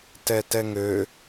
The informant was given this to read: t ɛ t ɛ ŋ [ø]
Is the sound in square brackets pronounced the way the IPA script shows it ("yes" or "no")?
yes